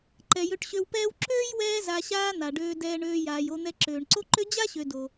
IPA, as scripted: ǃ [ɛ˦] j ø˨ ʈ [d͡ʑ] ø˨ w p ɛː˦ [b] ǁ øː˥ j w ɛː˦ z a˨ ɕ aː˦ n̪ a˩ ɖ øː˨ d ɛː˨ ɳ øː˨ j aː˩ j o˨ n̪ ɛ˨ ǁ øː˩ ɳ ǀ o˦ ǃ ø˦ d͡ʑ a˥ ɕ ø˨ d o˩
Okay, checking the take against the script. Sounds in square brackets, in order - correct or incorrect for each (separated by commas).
incorrect, incorrect, incorrect